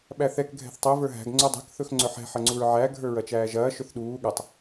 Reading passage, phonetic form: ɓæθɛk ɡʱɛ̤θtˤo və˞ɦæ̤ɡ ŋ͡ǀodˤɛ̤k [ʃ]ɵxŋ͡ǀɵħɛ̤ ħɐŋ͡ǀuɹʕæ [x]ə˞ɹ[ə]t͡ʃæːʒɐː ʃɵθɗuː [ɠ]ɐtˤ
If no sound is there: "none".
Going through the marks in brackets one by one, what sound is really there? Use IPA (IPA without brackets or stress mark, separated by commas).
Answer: θ, ɡʱ, ɐ, ɠ